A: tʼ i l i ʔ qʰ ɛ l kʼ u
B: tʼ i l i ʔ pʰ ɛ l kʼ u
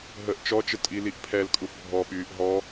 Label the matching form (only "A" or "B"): B